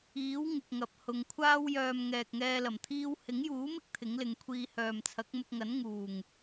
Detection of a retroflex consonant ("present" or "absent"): absent